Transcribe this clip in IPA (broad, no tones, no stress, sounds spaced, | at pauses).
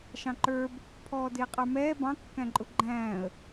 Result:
ʃ ɑ̃ ǃ ə˞ b | pʰ ɔː d ɪː qʼ ə˞ m ɛː b ɑ̃ kː æ̃ ǃʼ ʊ ɡ͡ǃ æ̃ː ə̯